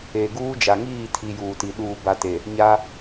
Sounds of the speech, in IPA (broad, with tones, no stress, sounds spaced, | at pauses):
e˨ ɡ uː˦ d͡ʒ a˨ ŋ iː˦˨ tʰ i˨ j uː˨ t i˨ ɗ uː˨ b a˨ t e˨ | ɲ a˦